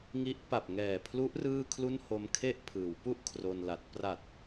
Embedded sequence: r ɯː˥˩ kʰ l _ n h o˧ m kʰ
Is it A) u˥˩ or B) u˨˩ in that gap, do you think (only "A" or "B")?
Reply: A